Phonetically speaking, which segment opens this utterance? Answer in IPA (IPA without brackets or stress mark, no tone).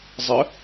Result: zˤ